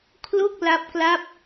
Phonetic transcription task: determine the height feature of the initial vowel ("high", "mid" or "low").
mid